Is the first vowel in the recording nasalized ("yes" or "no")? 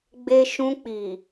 no